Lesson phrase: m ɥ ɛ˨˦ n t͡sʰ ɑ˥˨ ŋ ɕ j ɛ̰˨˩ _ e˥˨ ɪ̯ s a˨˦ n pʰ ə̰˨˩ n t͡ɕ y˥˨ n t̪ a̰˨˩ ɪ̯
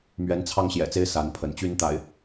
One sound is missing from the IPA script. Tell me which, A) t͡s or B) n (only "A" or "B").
A